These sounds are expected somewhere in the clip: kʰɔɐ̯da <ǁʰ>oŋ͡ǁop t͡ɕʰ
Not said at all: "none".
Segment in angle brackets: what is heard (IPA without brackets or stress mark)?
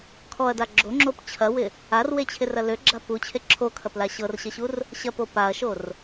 ɡ͡ǁ